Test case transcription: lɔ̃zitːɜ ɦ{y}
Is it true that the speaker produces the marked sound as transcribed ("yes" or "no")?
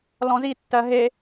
no